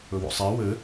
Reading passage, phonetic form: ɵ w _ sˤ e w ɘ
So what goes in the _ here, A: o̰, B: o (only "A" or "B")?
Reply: A